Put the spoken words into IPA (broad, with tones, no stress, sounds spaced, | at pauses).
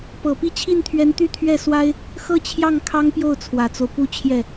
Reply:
p ɤ˨˩ p i˥˧ t͡ɕʰ i˥˩ n t̪ʰ ɥ ɛ˧˥ n t̪ y˥˧ t̪ʰ ɥ ɛ˥˩ s w a˥ ɪ̯ | x ɤ˥˧ t͡ɕʰ j ɑ˥˩ ŋ kʰ ɑ˥ ŋ p j o˥˩ ʊ̯ t͡sʰ w ä˨˩ t͡s o˦ ʊ̯ p u˥ t͡ɕʰ j ɛ˥˩